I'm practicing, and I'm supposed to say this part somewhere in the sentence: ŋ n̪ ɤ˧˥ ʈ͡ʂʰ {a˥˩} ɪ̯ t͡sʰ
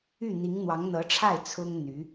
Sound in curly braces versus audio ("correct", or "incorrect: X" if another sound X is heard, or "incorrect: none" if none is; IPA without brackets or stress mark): correct